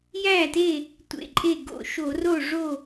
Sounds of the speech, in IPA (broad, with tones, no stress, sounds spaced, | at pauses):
j æ˥˩ t e˥˩ | tʷ ḛ˧˩ ǃʼ e˥˩ ɡ o̰˧˩ ʃ o˧˩˧ r o˥˩ ʐ o˥˩